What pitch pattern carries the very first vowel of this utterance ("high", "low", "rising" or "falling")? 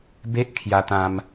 high